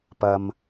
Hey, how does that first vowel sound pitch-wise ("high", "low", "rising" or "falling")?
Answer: low